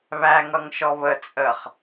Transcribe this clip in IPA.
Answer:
β æ ŋ ʌ ŋ ʃ ɔ β ə t͡sʼ ə χ

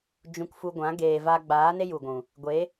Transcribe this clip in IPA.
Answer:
d͡ʒ ũ˧ k f u˧ ɡʷ ã˨˦ ɡ eː˨ v a˧ ɡ͡b aː˨˦ n e˦ j u˨ ɡʷ ũ˨ | ɡʷ e˨˦

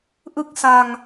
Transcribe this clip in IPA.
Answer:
ʔ ɯ˥˩ k̚ s a˧ ŋ

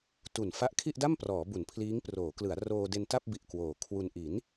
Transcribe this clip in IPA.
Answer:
t u˨˩ n f a˦˥ ʔ kʰ i˥˩ ʔ d a˥˩ m p r ɔː˩˦ b u˩˦ n pʰ l iː˦˥ ŋ p r oː˩˦ k l ɯ˩˦ a̯ r oː˧ d e˧ n t a˥˩ p̚ b i˨˩ ʔ k w oː˨˩ kʰ w u˧ n ʔ i˩˦ n

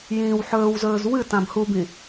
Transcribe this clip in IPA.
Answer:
j ĩː w ħ ɵː w z ɵː z w ɨ t ã b h u b ĩ

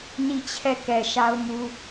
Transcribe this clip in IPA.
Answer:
n i˦˨ t͡ɕʰ ɛ˦˨ k ɛ˨ ʃ a˦ ʊ̯ m u˦

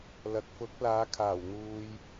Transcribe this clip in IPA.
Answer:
l ɐ˨ k̚ f ʊ˨˥ k̚ l aː˨˧ kʰ aː˨˩ w n̪ uː˨ j

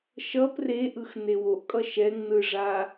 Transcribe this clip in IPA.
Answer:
ʃ ʌ p r e ʔ ɯ x n e w o ʔ kʼ ʌ ʃ ɛ ŋ n ɯ ʐ a

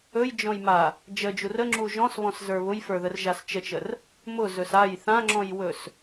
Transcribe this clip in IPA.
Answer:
ɵ j d͡ʒ ɔ̃ j m a | d͡ʒ ə d͡ʒ u r ə ŋ͡ǁ u ʒ ɔ̃ s β ɔ̃ s z ə˞ β ʊ j f ə˞ ð ə r ʒ a s t͡ʃ ə t͡ʃ ə r | m ʊ z ɵ s a j θ ã ŋ͡ǁ ɔ̃ j w ɵ s

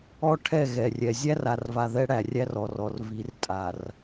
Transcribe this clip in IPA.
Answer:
ɔ˦ ʈʰ ɛ˦˨ ɣ ɛ˨ rʲ ɛ˨ zʲ æ˦ r a˨ r v a˨ ð ɛ˦ ɽ æ˨ rʲ æ˦ r ɔ˨ r ɔ˨ r v i˨˦ r tʼ a˨ r

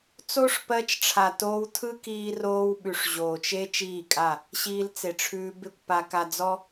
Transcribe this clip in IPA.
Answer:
t͡s o˦ ʂ p ɜ˧ t͡ʃ ʈ͡ʂʰ a˨ t oː˧ w tʰ ɯ˦ k iː˧ r oː˧ w ɓ ʉ˨ ʂ ʑ oː˨ t͡ʃ e˦ t͡ʃ iː˦˨ kʼ a˦˨ | ɕ iː˧ l t͡s e˨ ʈ͡ʂʰ ʉː˧ b e˦ kʷ p a˧ k a˧ d͡z ɔ˦

